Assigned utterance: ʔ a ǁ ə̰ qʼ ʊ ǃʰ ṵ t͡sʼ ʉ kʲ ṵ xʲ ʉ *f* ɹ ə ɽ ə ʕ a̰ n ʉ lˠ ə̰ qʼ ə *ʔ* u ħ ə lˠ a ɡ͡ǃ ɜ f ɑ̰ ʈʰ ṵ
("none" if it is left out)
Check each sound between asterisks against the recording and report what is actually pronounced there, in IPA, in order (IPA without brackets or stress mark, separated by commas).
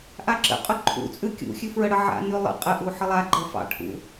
f, ʔ